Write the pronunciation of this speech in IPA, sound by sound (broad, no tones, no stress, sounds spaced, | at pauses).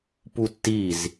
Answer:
p u tː i z